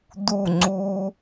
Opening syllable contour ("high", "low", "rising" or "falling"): falling